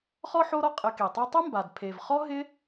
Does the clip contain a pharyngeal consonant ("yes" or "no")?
yes